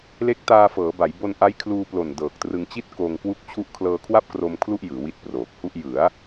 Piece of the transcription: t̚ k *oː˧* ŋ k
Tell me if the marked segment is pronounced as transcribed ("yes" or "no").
yes